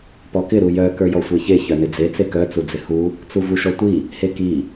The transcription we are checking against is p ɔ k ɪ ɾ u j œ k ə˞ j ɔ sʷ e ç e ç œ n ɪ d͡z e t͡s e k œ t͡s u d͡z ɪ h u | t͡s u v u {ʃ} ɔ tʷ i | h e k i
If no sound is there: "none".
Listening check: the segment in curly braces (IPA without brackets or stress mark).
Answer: ʃ